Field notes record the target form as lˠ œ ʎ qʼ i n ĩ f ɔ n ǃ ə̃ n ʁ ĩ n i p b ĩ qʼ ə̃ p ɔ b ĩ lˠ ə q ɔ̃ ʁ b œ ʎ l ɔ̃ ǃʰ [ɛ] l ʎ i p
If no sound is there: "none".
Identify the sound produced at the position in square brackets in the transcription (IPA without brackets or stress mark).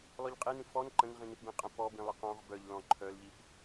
œ